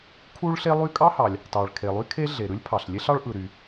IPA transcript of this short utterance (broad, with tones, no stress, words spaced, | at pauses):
kʰu˥ɭɬe˥lˠy˥ kʼɑ˥hɑ˩lʲ | tɑ˩ɭkʰe˩lˠy˥kʰe˥ ɮe˩ɾɯ˥lʲpʰɑ˩ɬlʲe˥ɬ ɑ˥ɭʔɯ˩ ɾy˩